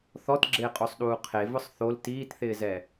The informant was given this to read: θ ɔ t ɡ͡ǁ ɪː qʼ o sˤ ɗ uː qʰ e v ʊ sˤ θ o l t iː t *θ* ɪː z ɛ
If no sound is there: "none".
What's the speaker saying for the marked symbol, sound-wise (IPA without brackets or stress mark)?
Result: θ